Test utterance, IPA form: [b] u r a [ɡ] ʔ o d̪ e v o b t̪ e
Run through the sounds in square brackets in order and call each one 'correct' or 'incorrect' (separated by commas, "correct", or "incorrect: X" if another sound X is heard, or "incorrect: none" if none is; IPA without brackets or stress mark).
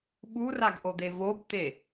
incorrect: ɓ, correct